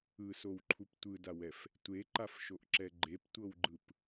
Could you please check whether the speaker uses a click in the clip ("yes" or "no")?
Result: yes